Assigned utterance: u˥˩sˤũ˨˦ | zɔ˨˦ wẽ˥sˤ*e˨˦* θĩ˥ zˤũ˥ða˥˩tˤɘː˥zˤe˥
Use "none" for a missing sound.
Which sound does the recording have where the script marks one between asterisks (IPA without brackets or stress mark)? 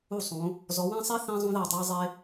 e˥